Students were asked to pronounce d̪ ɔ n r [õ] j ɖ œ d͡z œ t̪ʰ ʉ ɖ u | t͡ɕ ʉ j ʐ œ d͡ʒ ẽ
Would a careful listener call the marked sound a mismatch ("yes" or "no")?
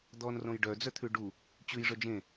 no